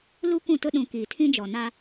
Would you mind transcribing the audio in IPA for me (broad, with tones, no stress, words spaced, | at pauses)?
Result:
lu˦kʷũ˦˨tʊ˦ɗũ˨ kiː˨tʰĩ˦d͡ʒɔ˨na˦